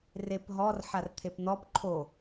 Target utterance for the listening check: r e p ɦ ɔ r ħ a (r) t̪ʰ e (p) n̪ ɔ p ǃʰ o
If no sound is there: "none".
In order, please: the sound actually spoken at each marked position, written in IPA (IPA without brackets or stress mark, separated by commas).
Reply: r, p